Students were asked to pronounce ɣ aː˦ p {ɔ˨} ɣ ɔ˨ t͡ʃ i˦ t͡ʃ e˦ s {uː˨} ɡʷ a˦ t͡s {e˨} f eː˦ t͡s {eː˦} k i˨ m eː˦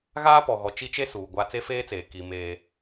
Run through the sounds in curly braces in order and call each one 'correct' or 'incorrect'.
correct, correct, incorrect: e˦, incorrect: eː˨

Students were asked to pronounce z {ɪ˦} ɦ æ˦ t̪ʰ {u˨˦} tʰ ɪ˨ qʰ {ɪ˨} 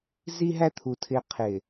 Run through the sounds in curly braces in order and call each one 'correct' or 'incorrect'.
incorrect: i˦, incorrect: u˨, correct

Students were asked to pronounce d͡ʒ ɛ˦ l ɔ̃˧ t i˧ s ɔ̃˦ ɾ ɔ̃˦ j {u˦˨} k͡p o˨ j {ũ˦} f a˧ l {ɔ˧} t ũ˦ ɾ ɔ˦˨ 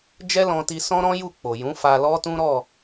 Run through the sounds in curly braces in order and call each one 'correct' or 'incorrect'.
correct, incorrect: ũ˨˦, incorrect: ɔ˦

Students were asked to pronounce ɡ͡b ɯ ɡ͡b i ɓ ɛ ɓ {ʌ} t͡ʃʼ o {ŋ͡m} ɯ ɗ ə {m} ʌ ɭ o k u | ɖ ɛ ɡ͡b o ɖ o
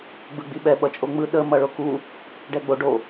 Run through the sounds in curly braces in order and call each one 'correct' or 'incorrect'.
correct, correct, correct

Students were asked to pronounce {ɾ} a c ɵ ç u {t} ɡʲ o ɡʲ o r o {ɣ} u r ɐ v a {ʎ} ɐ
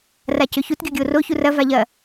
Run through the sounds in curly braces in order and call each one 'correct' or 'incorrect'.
incorrect: r, correct, incorrect: ç, correct

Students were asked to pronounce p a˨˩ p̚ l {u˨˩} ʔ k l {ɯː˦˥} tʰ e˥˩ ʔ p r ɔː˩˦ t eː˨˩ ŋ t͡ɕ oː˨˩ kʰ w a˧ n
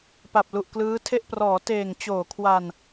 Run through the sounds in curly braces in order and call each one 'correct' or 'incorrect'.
correct, correct

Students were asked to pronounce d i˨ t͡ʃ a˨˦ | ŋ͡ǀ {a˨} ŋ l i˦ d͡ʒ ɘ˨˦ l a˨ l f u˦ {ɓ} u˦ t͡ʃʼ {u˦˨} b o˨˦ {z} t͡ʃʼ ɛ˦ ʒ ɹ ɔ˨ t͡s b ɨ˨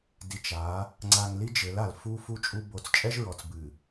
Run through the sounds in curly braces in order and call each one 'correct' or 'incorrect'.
correct, incorrect: f, incorrect: u˦, incorrect: t͡s

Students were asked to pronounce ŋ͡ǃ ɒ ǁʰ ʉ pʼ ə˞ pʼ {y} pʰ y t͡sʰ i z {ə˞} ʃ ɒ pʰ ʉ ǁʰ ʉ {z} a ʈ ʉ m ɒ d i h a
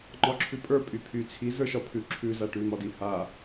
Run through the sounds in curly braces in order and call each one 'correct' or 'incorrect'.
correct, correct, correct

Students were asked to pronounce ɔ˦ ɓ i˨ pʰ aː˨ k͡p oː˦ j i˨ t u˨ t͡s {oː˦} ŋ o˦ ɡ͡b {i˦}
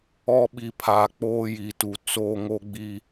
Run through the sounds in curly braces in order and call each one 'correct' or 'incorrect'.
correct, correct

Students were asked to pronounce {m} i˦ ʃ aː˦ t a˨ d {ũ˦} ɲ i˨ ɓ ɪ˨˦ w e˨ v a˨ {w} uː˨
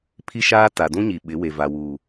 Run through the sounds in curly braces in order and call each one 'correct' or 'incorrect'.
incorrect: pʰ, correct, correct

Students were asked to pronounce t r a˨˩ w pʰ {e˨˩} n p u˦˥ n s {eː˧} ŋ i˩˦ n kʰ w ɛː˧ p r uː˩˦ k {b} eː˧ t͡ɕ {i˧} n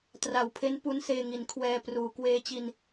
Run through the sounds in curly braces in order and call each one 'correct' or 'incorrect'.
incorrect: e˦˥, correct, incorrect: w, correct

